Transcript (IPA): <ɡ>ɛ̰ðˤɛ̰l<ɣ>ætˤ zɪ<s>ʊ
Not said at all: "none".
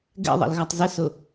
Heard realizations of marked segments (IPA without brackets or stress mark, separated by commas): ɡ, ɣ, s